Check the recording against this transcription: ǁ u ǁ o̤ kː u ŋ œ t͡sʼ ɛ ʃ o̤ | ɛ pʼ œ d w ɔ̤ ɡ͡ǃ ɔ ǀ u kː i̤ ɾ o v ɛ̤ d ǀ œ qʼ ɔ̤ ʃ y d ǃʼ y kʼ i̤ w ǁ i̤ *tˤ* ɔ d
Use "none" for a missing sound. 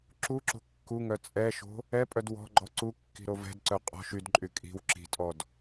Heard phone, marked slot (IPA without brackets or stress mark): tʼ